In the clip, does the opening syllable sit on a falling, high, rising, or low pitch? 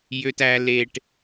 high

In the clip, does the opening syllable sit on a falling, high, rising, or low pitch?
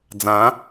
rising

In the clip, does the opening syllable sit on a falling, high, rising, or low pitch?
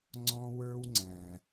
high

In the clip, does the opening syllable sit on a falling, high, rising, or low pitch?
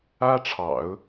high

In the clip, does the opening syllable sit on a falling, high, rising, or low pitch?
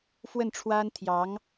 falling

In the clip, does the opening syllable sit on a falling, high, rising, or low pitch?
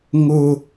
high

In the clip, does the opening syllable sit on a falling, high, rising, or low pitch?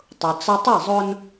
low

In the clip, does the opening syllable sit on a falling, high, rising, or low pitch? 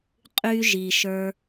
high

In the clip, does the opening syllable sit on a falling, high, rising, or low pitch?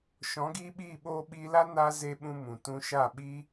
rising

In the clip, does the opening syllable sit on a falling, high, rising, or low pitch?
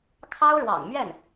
high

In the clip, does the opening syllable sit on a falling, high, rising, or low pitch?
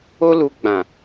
high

